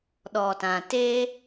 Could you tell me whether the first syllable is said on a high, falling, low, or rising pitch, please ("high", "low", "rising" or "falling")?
low